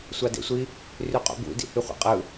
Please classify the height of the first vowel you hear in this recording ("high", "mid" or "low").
low